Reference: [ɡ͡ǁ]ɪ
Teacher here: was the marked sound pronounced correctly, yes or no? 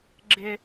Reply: yes